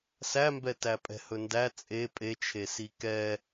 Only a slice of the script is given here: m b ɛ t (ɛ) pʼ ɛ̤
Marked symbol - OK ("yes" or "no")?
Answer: no